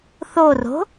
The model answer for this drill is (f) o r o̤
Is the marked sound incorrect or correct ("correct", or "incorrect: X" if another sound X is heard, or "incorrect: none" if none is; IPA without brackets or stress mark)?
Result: incorrect: θ